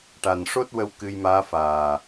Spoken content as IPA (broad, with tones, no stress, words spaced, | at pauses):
ʈa˨˩nʂo˦˥t̚wə˧w kɨ˧jmaː˧˥faː˨˩